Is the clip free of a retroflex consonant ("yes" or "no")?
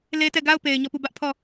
yes